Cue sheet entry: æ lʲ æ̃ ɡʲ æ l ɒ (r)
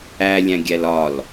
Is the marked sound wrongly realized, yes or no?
yes